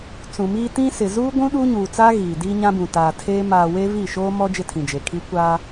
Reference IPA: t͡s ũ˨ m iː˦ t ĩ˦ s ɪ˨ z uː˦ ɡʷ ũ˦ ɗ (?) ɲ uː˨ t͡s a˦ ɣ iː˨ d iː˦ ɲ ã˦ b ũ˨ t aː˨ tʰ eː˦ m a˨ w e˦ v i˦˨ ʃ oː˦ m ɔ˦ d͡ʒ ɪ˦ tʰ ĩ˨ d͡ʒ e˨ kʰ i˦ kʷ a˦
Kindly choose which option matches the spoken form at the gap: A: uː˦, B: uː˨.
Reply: A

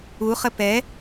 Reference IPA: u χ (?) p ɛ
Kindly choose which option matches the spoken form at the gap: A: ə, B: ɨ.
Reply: A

